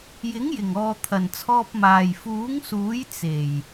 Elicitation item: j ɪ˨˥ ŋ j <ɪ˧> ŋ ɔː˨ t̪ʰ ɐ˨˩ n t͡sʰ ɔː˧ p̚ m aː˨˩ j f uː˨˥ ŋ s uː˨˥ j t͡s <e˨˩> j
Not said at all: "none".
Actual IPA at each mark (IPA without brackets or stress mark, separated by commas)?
ɪ˨˩, e˨˩